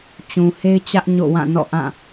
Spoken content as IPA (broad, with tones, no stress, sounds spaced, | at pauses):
t͡ɕ ũ˨ h e˦ ɪ̯ t͡ɕ ä˦ ʔ ɲ o̰˦˨ w ã˦˨ n ɔ̰˦˨ ʔ ã˦˨